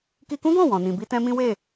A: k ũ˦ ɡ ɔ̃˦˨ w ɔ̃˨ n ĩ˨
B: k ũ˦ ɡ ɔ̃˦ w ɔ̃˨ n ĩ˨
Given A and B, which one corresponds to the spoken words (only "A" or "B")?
A